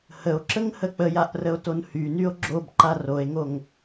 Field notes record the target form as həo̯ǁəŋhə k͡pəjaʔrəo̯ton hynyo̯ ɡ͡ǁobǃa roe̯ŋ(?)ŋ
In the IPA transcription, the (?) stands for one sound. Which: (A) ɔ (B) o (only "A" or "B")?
B